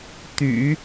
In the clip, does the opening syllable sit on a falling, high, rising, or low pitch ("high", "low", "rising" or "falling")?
low